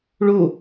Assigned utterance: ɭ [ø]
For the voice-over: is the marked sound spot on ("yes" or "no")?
no